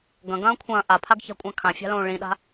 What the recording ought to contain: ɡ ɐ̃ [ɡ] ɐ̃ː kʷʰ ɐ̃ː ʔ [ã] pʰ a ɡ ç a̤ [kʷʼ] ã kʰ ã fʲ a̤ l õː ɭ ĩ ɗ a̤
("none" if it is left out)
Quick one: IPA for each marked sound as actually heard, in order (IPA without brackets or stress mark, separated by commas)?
ɡ, a, kʷʼ